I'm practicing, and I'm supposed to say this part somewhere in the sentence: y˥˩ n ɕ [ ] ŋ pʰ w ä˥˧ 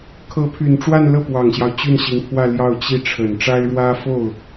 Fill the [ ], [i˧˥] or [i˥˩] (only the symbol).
i˧˥